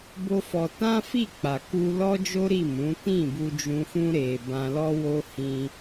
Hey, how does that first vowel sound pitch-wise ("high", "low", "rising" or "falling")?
high